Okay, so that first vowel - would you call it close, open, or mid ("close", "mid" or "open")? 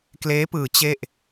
mid